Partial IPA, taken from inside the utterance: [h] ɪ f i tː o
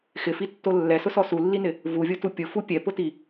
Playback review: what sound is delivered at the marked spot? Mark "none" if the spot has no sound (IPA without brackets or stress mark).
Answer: x